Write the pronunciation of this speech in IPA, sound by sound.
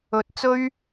ɵ˧ t̚ t͡s ɵ˥ ɥ

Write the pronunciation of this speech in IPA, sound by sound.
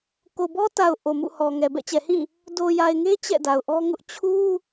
k o˨ b ɔ˦ t a˨ ʊ̯ ʔ o˨ m ṵ˦˨ h ɔ˨ ŋ ɛ˨ b ɛ̰˦˨ t͡ɕ ɛ˨ h ĩ˦˨ | d o˨ j a˨ ɪ̯ ŋ e˦ t͡ɕ ɛ̰˦˨ d a˨ ʊ̯ ʔ ɔ˦ ŋ ʊ˦ ʔ t͡ɕʰ u˦

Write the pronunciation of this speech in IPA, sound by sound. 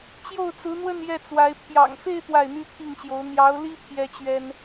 t͡ɕ j o˥˩ ʊ̯ t͡s ɹ̩˧˥ n̪ w ə˥˧ n j ɛ˥˩ t͡s w a˧˥ ɪ̯ pʰ j ɑ̰˨˩ ŋ f e˥˧ ɪ̯ t̪ w a˥˩ ɪ̯ n̪ y˥ pʰ i˥˩ ŋ ɕ j o˧˥ ʊ̯ n̪ j ɑ˧˥ ʊ̯ l i˥ pʰ j ɛ˥ t͡ɕ ɥ ɛ˥ n

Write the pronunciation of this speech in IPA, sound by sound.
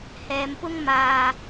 h ɛː˨˧ m p ʊ˥ ŋ m aː˧

